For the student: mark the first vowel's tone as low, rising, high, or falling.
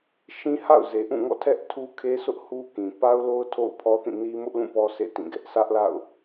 high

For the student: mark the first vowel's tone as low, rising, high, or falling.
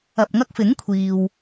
low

